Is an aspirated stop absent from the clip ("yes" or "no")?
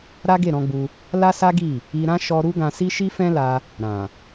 yes